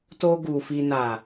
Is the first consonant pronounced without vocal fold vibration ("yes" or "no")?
yes